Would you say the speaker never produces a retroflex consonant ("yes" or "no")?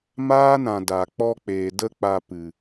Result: yes